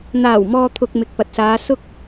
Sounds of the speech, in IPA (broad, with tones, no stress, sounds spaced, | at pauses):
n̪ aː˨˩ w m ɔː˨ t̪ʰ ʊ˨ k̚ m ɪ˨ k̚ p ɐ˨ t̚ s aː˨˧ s ʊ˧ k̚